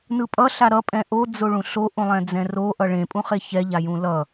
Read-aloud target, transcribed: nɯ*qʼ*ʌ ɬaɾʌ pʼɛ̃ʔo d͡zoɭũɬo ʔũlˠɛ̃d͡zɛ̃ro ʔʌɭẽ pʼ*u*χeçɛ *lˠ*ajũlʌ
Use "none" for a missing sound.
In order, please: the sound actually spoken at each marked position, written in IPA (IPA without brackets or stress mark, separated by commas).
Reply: pʼ, ũ, ʎ